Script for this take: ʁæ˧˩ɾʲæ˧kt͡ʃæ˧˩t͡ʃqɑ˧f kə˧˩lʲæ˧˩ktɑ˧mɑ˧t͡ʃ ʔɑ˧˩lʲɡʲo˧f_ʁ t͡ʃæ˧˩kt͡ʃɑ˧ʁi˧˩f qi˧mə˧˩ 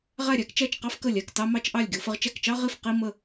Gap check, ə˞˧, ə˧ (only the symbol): ə˧